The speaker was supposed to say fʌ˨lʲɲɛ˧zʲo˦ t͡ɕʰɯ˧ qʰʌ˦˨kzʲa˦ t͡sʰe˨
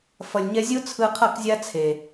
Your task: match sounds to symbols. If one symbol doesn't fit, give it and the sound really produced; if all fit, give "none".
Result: t͡ɕʰ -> t͡sʰ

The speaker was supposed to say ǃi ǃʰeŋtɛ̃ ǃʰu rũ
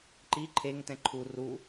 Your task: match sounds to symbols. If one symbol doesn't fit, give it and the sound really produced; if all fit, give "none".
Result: ũ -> u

